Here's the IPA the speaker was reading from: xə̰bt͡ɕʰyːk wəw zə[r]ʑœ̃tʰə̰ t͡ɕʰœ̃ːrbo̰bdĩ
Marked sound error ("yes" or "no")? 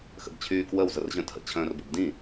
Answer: no